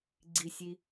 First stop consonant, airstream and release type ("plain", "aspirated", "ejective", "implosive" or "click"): click